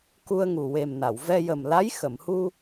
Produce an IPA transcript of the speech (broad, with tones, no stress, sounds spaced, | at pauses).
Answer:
k u˧ ə̯ ŋ u˨˩ w e˨˩ m n a˨˩˨ w v ɛ˧ j ə˨˩ m l a˧˥ j x ə˨˩˨ m h u˧